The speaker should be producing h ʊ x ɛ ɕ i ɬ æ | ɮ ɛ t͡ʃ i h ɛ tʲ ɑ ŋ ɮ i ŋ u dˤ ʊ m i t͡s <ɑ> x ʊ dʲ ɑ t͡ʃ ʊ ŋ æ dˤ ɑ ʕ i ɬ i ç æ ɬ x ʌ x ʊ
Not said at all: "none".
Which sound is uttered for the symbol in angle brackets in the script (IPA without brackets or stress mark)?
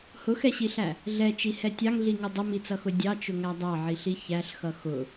ʌ